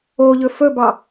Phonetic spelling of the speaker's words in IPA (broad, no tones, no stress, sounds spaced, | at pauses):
o ʎ ɵ f ɵ b ɑ